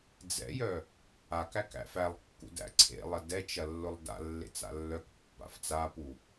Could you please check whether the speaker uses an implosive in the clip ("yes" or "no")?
no